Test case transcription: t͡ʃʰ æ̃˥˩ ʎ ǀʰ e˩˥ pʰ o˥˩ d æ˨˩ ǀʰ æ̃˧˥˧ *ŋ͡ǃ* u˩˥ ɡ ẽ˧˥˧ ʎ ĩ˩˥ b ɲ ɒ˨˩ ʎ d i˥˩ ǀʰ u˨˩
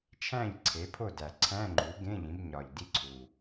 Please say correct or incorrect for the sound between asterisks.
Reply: correct